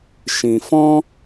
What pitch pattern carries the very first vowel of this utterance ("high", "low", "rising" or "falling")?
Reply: low